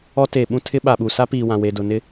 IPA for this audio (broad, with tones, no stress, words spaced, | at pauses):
ɔ˦ teː˨ ɓũ˦tʰɪ˦ ɓa˨ɓu˨ sa˦piː˨wã˨ we˨dʊ˨ nɪ˦